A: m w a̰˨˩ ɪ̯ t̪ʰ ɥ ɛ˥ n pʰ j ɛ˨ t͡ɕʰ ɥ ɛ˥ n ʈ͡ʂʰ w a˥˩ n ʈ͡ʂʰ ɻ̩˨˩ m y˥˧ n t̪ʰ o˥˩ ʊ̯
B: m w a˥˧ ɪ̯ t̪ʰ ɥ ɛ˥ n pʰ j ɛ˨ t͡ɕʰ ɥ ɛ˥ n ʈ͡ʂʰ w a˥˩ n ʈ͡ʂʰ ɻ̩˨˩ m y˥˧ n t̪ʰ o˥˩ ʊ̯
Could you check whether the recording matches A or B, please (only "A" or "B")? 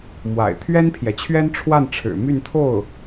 A